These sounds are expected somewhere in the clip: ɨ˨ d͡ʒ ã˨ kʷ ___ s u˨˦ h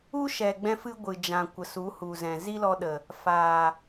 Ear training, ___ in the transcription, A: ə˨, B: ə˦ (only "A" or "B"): A